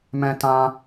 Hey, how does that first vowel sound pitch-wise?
high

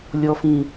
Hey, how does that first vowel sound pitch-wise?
high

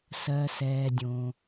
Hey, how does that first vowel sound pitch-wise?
low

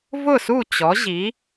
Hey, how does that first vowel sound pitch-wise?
falling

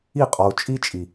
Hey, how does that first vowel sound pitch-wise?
falling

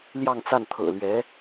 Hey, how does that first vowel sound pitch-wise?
falling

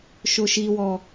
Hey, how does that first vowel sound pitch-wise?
high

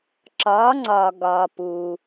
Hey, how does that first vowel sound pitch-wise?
rising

